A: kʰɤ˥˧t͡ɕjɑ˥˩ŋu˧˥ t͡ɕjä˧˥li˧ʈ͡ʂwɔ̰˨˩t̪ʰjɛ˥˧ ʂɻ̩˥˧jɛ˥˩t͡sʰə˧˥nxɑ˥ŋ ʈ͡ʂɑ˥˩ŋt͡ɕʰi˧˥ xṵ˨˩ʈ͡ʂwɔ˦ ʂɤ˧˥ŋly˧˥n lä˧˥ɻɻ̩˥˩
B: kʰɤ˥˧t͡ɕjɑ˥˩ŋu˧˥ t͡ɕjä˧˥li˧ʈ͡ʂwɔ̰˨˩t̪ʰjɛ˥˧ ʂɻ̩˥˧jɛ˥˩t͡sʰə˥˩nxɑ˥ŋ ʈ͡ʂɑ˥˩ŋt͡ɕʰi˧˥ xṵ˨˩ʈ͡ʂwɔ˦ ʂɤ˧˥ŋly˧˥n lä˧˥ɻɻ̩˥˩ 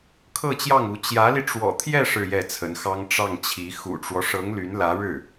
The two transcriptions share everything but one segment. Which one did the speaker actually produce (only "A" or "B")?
A